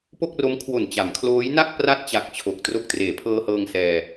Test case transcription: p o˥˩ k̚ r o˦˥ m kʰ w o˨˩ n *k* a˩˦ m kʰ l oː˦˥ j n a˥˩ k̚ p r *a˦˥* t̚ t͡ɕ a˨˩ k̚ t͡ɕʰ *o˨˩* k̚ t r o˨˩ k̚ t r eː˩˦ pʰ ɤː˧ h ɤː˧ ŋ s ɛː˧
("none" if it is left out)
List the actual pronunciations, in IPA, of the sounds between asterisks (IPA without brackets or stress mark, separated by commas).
t͡ɕ, a˥˩, o˨˩